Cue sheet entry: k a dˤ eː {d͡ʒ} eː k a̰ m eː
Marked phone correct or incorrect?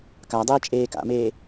incorrect